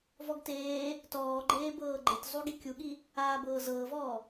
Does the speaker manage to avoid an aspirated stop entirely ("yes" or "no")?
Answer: yes